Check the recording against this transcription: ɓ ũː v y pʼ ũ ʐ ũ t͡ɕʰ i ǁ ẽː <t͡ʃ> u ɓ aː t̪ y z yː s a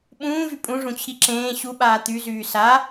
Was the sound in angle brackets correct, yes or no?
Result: no